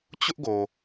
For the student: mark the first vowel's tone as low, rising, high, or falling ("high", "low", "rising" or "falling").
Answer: high